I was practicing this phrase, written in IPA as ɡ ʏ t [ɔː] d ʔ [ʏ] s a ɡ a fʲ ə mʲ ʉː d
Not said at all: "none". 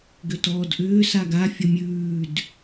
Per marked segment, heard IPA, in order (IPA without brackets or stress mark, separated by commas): ɔː, ʏː